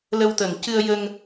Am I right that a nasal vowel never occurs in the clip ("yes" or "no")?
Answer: yes